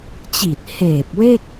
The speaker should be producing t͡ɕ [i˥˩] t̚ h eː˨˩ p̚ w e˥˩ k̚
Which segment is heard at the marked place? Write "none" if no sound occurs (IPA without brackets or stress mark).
i˨˩